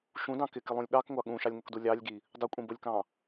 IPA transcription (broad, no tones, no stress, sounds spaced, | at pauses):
ʃ ũ d ɑ̃ k ɪ k ɪ lˠ ũ lʲ ɠ ɑ k ŋʷ ɑ ɠ ũ ʃ ɑ lʲ ŋ ʊ k d u lʲ ɑ lʲ ɡ i | dˤ ʊ kʷʼ ĩ b ʊ lʲ k ɑ̃